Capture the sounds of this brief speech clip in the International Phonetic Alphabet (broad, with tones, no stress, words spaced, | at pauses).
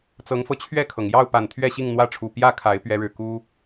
t͡sɤ˨˦ŋfɤ˧t͡ɕʰɥɛ˥˨kʰɤ˩ŋ jɑ˥˨ʊ̯pa˨˩n t̪ʰɥɛ˥˨ɕi˥˨ŋn̪wä˥˨ʈ͡ʂʰu˨˩ pjä˥˨kʰa˨˦ɪ̯ pɥɛ˨˦ɻɻ̩˨˩ ku˦